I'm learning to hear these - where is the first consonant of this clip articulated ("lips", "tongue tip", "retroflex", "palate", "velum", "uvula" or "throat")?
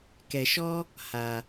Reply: velum